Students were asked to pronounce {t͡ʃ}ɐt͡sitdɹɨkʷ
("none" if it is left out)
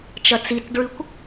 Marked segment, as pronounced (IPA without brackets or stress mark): t͡ʃ